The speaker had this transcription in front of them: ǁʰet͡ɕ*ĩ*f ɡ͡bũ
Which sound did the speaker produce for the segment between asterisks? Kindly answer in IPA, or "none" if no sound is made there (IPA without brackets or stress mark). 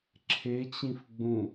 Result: ĩ